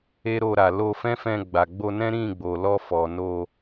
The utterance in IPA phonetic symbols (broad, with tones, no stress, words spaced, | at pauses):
e˦ɾo˧ɾa˨ lo˧fɛ̃˦fɛ̃˧ ɡ͡ba˨ɡ͡bo˧nɛ̃˦ ɾĩ˦˨ɡ͡bo˨lɔ˧ fɔ˨no˧